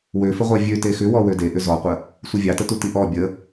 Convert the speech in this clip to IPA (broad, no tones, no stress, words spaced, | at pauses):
wøfəʁʷɑ vʲøte xʏwɔ wødeʔʏ zɔqʷə | sʷivʲɑtə tutiʔɔ bʲə